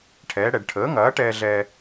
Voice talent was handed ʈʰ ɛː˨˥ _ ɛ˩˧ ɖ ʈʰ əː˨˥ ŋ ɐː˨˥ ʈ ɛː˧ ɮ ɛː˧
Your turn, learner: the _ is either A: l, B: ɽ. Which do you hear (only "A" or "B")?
B